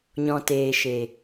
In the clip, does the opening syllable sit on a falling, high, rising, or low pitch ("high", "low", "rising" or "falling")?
low